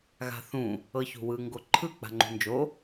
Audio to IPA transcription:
ɣ a̤ θ ũ | ɤ ç ṳ w ɯ ŋ ɡ o ǃʰ ɯ k͡p a̤ ŋ͡ǃ ṳ n d͡ʒ o

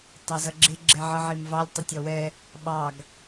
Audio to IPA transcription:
tˤ ɛ z ʌ ɡ͡ǁ ɪ ɡ͡ǁ ɛ ʕ ʌ ʕ i m v ɑ lʲ tˤ ə tʲ ɔ w ɛ | ɓ ɑ ɡ

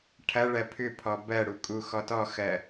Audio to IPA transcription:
ʈʰ ɐ ɭ ɜ pʰ ʏ pʰ ɔ b ɜ ɽ u kʼ u x ɔ t ɔ x ɜ

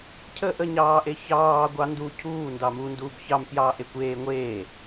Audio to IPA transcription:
cʰ ə ʔ ə ɲ ɑː ʔ e ç ɑː ɡʷ ɑ n d u cʰ uː n d ɑ m u n d uː b ç ɑ m f j ɑː ʔ e kʷ eː ŋʷ eː

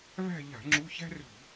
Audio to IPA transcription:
β æ̤˦˨ ʎ a̤˧˩˧ ŋ͡ǁ u˧˥˧ ç æ̤˥ r ṳ˧˩˧

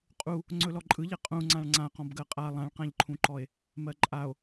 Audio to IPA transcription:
qʼ u | ŋ͡ǀ ɵ l ɔ ǃʼ ɯ ʎ ɛ qʼ ũ ŋ͡ǀ ã ɭ ŋ͡ǀ ã q ɔ̃ b ɡ ɜ qʼ a lˠ ã ɭ q ã ʎ ǃʰ ũ ǃ ɔ e̯ | m ɜ ǃʼ a o̯

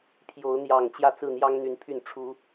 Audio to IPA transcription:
pʰ j o˨˦ ʊ̯ n̪ j ɑ˨˩ ŋ t͡ɕ j ä˥˨ t͡s ɹ̩˥˨ n̪ j ɑ˦ ŋ n̪ y˨˦ n pʰ y˨˩ n ʈ͡ʂʰ u˨˦

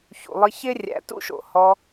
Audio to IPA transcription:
ç ṵ˨ lˠ ɨ˧ ç ɪ˦ rʲ æ̰˧ t ṵ˦ ʃ o̰˨ h ɔ˧

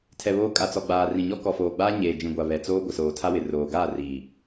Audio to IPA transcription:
tʰ ɛ˨ β oː˦ kʼ a˨ t͡s ɔ˨ ɡ͡b aː˨ r ĩ˨ ɲ ɔ˦ k ɔ˨ f oː˨ ɡ͡b aː˦ ɲ eː˨ d͡ʒ ĩ˨ ɡʷ a˨ β ɛ˨ t͡s oː˦ ɡʷ ɪ˨ s oː˨ tʰ a˦ w ɪ˨ r oː˨ ɡ aː˦˨ r iː˨

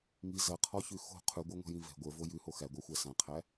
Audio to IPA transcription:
ŋ i z ɐ qʰ ɔ ç ʉ x o̤ qʰ ʉ ɡʷ ə˞ ŋʷ ɛ̤ j ĩ v ɛ̤ ɡʷ ə˞ v o j ʉ h o x æ ɡʷ a xʷ æ s ã qʰ æ

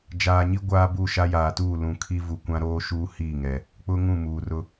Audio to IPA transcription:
d͡ʒ aː˨ ɲ i˦ ɡʷ aː˦ b u˦˨ ʃ a˦ j aː˨ t uː˦˨ l ũ˨ kʰ i˦ v u˨ kʷ ã˦ ɾ oː˦ ʃ uː˦ h iː˦˨ ŋ ɛ˨ | k͡p ʊ˦ ŋ ũ˦˨ m uː˨ r ʊ˦

